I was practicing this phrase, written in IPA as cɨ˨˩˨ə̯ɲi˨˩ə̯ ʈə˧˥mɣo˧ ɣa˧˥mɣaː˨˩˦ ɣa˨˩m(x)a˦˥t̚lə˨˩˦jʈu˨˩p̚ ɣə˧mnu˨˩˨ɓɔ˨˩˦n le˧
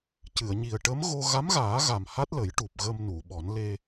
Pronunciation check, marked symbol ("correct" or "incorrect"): incorrect